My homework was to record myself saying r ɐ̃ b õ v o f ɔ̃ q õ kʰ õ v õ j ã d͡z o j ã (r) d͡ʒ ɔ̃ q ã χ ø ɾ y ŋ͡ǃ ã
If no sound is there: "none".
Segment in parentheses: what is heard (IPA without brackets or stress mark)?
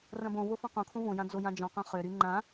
none